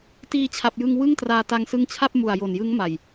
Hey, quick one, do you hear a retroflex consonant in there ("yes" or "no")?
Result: no